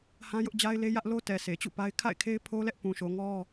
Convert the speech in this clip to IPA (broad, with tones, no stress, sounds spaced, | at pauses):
h ã˦ j ʊ˦ ʔ d͡ʑ a˦ ɪ̯ l e˦ j ä˦ ʔ l o˦ t ɛ˨ sʰ e˨ t͡ɕ ṵ˦˨ p a˦ ɪ̯ kʰ a̰˦˨ ɪ̯ kʰ e˦ ɪ̯ pʰ o˦ l ɛ˦ ʔ p ũ˨ ʃ o˨ ŋ ɔ˦